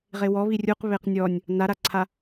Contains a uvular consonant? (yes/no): yes